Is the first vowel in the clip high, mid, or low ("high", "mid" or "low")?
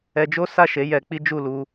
mid